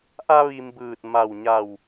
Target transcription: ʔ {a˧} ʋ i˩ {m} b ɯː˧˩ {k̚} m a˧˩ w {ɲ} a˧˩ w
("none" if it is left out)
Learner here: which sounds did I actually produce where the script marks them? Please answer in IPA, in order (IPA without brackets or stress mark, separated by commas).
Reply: a˧, m, t̚, ɲ